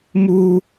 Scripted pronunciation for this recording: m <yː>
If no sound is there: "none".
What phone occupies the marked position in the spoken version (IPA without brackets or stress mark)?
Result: uː